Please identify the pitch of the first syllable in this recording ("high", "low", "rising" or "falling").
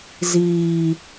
low